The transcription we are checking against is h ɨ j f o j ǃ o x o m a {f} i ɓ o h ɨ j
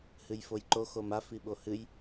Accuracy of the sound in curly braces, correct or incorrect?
correct